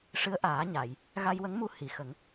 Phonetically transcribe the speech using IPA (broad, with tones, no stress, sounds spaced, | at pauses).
ʂ ɨ˧˥ ə̯ ʔ aː˨˩˦ ɲ a˨˩˨ j | ɣ a˧ j w ə˧˥ ŋ m u˧ h i˨˩˨ x ə˨˩˦ ŋ